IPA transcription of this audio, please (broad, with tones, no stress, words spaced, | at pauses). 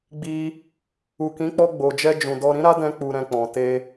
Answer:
ɡ͡bi˧ | u˨kĩ˨˦k͡pɔ˧ ɡ͡bo˨d͡ʒɛ˧ d͡ʒũ˨dɔ˧ɾĩ˦ ɾa˦dɛ̃˧ k͡pu˨ɾɛ̃˨ k͡pɔ̃˨te˧